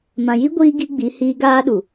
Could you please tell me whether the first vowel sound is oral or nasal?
nasal